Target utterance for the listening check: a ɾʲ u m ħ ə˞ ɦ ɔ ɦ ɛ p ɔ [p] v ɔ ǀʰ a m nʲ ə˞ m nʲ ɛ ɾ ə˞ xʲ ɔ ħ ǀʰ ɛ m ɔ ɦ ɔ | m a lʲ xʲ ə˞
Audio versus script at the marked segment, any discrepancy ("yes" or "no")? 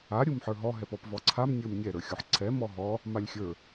no